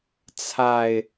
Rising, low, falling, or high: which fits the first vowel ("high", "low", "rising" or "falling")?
low